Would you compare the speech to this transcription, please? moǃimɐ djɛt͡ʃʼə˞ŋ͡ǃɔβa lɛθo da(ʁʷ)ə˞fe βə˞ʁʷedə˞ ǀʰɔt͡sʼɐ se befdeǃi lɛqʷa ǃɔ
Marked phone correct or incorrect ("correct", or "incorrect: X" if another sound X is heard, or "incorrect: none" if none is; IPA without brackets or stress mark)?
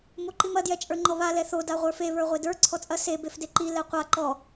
correct